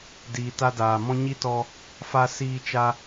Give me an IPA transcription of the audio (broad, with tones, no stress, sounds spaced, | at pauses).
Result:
d iː˨ t a˧ d aː˨ m ɔ̃˦ ɲ i˦ t ɔ˧ | f a˧ s iː˧ t͡ʃ a˧